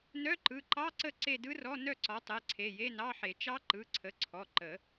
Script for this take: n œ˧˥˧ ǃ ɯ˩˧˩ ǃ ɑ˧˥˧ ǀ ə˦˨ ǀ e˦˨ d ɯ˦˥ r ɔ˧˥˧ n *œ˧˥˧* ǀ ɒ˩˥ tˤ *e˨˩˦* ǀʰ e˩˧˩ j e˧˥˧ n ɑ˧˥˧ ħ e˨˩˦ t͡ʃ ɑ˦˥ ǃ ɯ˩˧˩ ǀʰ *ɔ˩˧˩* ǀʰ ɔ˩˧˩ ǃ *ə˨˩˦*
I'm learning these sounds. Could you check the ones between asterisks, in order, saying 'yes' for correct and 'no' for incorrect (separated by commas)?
no, no, no, yes